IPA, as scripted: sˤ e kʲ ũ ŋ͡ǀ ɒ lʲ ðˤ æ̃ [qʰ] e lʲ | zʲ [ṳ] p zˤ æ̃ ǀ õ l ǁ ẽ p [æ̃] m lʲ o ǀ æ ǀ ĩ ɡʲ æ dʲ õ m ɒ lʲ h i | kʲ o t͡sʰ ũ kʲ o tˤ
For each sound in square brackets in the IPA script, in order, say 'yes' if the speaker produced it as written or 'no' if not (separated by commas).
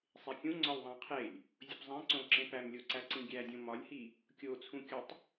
yes, no, no